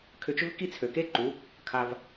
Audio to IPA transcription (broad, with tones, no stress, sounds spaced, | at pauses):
kʰ ʏ˧ t͡ʃ ʏ˦ v k i˦ t͡sʰ ø˨ k e˦ ǃ u˨˦ | kʰ a˧ v